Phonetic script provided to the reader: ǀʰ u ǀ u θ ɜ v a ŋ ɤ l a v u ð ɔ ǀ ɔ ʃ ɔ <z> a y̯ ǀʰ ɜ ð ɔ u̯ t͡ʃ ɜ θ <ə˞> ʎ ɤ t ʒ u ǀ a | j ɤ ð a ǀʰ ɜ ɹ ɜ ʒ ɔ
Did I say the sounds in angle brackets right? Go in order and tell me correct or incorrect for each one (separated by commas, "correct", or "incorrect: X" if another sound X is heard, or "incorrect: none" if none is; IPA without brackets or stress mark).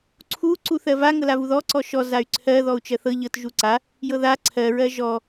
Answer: correct, incorrect: ɤ